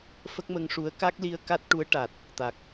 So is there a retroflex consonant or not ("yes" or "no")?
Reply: yes